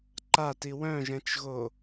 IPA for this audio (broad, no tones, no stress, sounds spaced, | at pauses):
ǃ a t i w œ̃ ʒ ɛ̃ t͡ʃ ɣ o